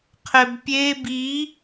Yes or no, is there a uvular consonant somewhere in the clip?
yes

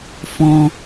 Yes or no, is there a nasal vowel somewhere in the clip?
yes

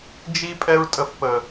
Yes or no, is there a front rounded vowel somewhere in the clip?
no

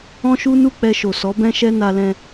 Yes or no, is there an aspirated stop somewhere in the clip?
no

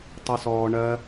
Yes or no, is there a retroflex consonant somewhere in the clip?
yes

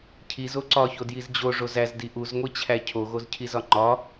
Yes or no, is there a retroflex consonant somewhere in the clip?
yes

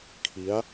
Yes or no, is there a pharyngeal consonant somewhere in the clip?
no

